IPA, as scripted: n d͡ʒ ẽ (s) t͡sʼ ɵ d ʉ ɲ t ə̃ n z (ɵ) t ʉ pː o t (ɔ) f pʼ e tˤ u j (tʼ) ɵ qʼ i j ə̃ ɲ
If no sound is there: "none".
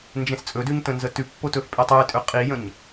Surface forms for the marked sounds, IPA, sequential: s, ə, ɵ, tʼ

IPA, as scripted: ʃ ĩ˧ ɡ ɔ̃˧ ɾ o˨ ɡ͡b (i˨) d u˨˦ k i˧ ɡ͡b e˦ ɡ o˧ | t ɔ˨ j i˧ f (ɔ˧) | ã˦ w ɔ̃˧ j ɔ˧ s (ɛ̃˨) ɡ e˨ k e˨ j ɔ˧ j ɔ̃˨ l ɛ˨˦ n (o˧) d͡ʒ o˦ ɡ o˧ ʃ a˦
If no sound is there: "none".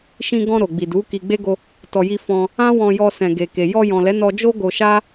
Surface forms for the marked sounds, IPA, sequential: i˨, ɔ̃˧, ɛ̃˨, ɔ˧

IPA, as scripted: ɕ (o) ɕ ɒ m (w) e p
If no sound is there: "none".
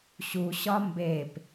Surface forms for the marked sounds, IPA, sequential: u, b

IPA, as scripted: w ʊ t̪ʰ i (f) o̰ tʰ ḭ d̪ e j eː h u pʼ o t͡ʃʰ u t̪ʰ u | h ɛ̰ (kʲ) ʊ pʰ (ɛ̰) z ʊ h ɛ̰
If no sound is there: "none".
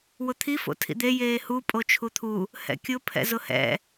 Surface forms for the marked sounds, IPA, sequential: f, kʲ, ɛ̰

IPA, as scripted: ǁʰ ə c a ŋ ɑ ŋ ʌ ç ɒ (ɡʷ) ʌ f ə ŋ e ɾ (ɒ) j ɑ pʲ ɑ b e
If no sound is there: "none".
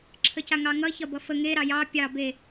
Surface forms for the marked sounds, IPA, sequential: b, ɑ

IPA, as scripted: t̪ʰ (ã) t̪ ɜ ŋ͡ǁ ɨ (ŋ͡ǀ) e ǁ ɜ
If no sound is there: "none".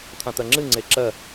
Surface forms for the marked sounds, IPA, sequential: ã, ŋ͡ǀ

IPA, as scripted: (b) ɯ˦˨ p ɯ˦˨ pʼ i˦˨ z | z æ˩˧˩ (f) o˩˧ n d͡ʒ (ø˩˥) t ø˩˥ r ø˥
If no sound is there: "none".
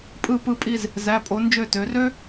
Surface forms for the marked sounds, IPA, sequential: pʼ, pʼ, ø˦˨

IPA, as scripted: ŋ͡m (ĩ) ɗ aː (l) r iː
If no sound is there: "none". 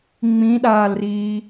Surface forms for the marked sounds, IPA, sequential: ĩ, l

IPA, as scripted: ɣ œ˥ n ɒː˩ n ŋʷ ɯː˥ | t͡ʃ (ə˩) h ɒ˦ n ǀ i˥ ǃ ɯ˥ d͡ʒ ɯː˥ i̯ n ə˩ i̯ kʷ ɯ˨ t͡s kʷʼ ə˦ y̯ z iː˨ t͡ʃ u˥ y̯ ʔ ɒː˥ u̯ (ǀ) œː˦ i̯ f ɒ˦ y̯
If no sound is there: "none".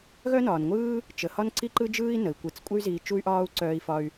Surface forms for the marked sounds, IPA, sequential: ə˩, ǀ

